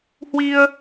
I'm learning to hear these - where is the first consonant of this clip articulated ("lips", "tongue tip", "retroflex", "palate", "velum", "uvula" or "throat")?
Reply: throat